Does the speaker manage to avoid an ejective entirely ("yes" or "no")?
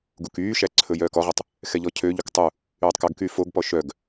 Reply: yes